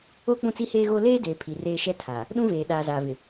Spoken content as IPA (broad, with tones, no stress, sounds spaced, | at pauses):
o˦ k͡p ũ˦ t͡s i˦ h eː˦ ɣ oː˦ l eː˦ d eː˨ pʰ i˨ r eː˦ ʃ ɛ˦ tʰ a˨ | ɗ ũ˦ v eː˨ ɗ aː˨ z aː˨ v ɪ˨